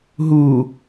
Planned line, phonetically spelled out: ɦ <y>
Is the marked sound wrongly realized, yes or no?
yes